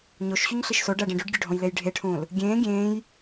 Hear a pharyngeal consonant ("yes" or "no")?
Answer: no